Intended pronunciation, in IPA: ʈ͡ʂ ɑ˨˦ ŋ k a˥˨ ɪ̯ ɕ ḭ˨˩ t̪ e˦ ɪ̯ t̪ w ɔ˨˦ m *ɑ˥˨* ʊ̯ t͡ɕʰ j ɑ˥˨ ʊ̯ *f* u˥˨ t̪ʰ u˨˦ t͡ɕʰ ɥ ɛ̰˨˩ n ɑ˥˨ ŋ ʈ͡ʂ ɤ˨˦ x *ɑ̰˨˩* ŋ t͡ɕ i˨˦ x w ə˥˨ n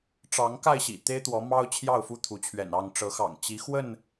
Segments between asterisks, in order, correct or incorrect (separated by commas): incorrect, correct, correct